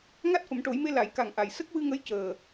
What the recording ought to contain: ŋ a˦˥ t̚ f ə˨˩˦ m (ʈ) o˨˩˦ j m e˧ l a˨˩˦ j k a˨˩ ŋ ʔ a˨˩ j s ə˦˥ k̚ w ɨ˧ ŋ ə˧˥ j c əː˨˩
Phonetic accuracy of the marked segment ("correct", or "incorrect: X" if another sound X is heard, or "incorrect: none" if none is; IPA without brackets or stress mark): correct